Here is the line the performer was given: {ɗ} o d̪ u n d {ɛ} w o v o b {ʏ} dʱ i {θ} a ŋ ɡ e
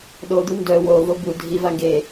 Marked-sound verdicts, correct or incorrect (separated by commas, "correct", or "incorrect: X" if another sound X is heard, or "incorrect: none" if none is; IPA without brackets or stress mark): correct, incorrect: œ, incorrect: u, incorrect: v